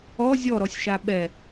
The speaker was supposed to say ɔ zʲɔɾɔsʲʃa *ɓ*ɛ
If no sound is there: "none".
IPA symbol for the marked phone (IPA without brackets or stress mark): ɓ